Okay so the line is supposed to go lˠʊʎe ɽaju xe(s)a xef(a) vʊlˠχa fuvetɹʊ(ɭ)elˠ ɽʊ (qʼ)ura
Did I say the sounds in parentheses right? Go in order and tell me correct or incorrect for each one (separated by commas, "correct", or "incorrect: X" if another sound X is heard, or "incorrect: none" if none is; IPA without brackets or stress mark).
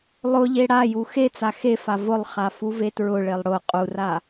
incorrect: t͡s, correct, correct, correct